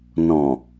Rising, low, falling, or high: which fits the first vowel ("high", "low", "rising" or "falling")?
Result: low